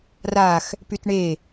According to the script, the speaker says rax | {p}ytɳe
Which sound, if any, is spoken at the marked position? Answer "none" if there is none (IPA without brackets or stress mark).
p